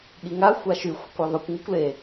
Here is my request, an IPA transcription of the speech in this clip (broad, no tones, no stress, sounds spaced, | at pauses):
ɠ i ŋ a xʷ a ʃ y xʷ ɪ kʷ a ðˤ ɵ kʷ ŋ ɵ kʷ l e